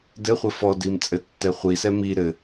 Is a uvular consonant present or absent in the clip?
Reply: present